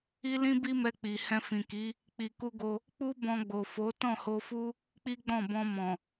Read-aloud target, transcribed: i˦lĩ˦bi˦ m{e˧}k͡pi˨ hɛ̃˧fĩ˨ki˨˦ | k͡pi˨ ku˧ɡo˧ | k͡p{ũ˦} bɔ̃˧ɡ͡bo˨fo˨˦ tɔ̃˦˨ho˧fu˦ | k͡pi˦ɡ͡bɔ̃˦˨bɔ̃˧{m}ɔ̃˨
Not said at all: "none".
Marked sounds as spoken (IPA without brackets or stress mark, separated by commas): ɛ˧, u˦, m